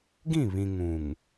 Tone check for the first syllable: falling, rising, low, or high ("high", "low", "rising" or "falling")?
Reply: falling